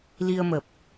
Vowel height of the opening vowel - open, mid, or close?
close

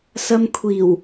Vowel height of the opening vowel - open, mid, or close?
open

